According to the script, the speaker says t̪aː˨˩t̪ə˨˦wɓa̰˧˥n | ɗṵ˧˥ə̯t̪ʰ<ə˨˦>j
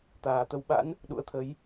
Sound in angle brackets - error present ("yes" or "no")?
no